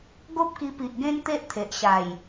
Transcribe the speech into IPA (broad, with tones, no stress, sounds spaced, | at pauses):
ɡ o˦ p̚ k i˧ p i˨ ʔ ɡ ẽ˧ n t̪ e˦ ʔ t̪ʰ e˨ ʔ ɕ a˨˩ j